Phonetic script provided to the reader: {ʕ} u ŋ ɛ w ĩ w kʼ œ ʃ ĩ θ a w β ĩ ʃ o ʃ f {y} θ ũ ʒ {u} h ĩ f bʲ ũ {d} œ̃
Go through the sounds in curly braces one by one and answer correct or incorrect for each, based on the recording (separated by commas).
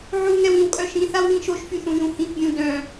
correct, correct, incorrect, correct